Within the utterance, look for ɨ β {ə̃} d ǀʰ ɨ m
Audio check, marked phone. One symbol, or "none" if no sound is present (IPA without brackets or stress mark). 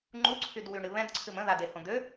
ɛ̃